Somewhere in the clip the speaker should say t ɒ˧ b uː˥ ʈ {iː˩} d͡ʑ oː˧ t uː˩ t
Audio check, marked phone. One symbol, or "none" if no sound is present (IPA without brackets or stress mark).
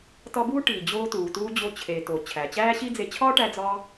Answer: iː˩